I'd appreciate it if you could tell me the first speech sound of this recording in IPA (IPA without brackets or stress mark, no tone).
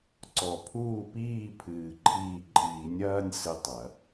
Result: ǀ